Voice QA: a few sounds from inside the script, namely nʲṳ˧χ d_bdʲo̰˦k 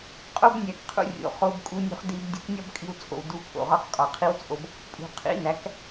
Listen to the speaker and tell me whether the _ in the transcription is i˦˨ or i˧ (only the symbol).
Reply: i˧